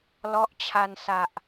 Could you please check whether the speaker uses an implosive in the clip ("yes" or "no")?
no